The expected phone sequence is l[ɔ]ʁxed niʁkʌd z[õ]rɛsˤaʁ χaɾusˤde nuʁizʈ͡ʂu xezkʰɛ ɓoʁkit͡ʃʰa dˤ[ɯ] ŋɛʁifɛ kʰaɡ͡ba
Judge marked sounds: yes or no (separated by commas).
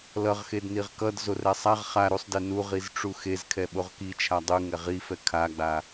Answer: no, no, yes